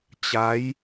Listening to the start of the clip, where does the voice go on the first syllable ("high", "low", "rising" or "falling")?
rising